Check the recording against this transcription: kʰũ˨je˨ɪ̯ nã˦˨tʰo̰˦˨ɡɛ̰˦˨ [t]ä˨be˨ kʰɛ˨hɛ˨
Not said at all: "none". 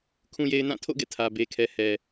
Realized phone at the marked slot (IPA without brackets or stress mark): tʰ